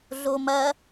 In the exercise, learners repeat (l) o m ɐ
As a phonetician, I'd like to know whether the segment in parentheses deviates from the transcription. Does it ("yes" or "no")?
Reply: yes